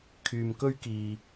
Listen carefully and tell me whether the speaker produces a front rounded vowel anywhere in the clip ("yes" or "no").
yes